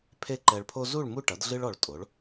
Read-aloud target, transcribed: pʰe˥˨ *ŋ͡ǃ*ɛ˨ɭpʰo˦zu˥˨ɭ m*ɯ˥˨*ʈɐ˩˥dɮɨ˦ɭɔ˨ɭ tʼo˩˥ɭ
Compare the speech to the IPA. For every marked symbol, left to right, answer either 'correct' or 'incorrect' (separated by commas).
incorrect, incorrect